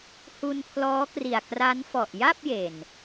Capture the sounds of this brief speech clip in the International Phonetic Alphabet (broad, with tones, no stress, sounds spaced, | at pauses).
h u˧ n pʰ l ɔː˦˥ k r i˨˩ a̯ k r a˦˥ n f ɔ˨˩ ʔ j a˥˩ p̚ j e˨˩ n